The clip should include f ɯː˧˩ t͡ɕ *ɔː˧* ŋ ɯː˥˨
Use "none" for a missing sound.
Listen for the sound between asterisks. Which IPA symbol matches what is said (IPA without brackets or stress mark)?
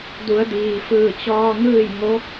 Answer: ɔː˧